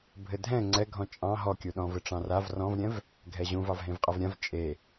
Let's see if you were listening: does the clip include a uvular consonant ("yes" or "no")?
yes